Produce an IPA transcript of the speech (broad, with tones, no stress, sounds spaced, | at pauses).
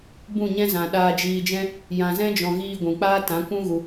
b ũ˦˨ ɲ ɛ̃˦ z ã˨ ɗ aː˧ d͡ʒ iː˧ d͡ʒ ɛ̃˦ | j ã˨ z ɛ̃˦ d͡ʒ ɔ̃˨ ɣ iː˧ ɡʷ ũ˨ k͡p aː˦ t ã˨˦ kʷ ũ˦ ɣ u˧